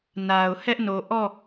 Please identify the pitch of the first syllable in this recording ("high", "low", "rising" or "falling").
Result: low